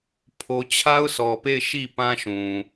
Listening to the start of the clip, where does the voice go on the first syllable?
low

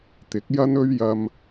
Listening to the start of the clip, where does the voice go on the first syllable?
rising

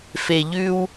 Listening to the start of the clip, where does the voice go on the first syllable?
low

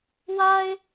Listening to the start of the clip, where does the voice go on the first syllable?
high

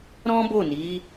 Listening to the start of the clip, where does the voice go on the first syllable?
high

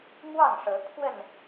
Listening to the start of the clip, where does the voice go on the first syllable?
falling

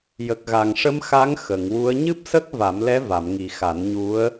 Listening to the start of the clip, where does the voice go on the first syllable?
low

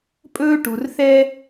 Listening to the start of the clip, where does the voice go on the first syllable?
high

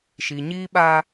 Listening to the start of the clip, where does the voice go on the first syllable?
low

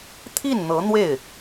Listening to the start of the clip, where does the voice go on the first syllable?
falling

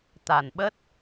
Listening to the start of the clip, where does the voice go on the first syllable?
low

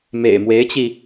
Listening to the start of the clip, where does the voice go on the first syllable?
low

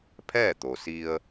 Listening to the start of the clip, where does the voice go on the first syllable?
falling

